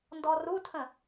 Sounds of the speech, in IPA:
ndɔrutʰə̃

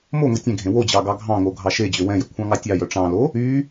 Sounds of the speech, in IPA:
moŋʷi tʲɛ̃ɡʱẽ wod͡ʑɑ ɡɑɡʱɑ̃ŋo ɡʱɑʃed͡ʑø wɛ̃jɵ kʷʰɑ̃ŋɑtʲɑjœ ʈ͡ʂɑ̃lo | y

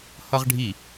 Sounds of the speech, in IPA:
hʌʁɖʱi

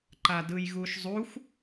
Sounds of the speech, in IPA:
ǃadɯjɣuʃzˤuxʷ

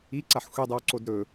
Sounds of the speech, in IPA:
iǀaħ xʷedˤɵw ǀodɾɵ

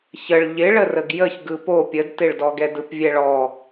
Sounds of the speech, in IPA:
çəɭ ʎɪɭərəɡ jəç ɡɯpo pʲədtɪɭdɔ ɡɛdɯpvʲɛɭɔ

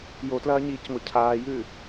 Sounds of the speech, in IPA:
jotlɐːɲiːcŋʷɐ cʰaːjʉ

